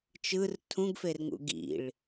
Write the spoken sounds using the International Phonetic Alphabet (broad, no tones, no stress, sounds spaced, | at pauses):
t͡ʃ ɯ r tʰ ũ ɡ f e r ŋ ṵ ɡ ḭ ɭ